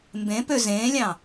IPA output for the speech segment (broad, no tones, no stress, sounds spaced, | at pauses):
m b ẽ p ø z ẽː lʲ ɑ̃